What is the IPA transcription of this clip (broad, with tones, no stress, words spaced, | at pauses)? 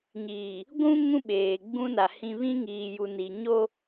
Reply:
ɲiː˨ | ɡʷũ˦ ŋũ˦ɓeː˨ɡ͡bũ˦na˨ hĩ˨ βĩ˦ŋiː˨ju˨ ni˨ ɲo˦